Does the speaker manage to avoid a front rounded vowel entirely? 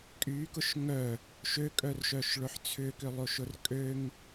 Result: no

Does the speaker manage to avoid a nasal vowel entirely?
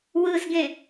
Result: no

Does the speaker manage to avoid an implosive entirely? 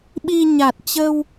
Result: no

